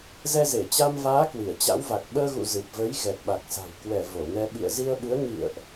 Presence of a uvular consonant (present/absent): absent